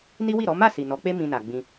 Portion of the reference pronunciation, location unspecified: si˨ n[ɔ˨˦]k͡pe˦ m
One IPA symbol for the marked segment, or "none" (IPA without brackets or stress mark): ɔ˨˦